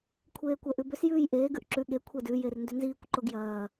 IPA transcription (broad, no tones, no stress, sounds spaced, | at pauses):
kʷʰ eː kʷ ɛ ʔ ʉ b ʏ s j ʉː j ʔ eː ɡ ʉ ʔ ǁ ʉ ɠ e kʷʰ ɛ d ʉ j e r n d ʏ n z iː kʷ ǃ o ɡ j ɐː